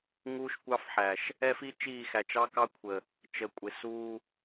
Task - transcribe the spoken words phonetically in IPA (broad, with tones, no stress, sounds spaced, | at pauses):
ŋ uː˦ ʃ kʷ ɑ˦ f ħ æ˨ ʃ | ɛ˦ f i˦ t͡ʃ iː˦˨ x æ˨ t͡ʃ ɑ˦ k ɑ˦ kʷʰ ə˨ | t͡ʃ ə˨ kʷʼ ɪ˨ s uː˦